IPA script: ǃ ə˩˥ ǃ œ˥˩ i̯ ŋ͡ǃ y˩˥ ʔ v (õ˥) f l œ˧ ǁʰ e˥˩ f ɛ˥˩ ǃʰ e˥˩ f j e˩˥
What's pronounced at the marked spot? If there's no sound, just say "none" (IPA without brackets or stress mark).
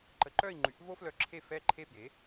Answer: o˥